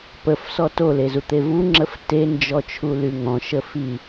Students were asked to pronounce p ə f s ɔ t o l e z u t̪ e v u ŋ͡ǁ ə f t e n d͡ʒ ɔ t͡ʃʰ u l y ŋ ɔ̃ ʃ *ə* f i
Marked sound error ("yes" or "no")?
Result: no